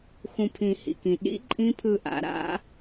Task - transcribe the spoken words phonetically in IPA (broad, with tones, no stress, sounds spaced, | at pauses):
x ũ˧˩ pʰ ĩ˨˩˦ h ḭ˩ k ĩ˩ ɗ ḭ˦˥ ǃʼ ĩ˦˥ pʰ ɯ˧˩ ʔ a̰˨˩˦ ɾ a̰˦˥